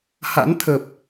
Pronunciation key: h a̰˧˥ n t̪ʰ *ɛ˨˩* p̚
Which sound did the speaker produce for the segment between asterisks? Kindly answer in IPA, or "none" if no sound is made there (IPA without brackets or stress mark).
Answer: ə˨˩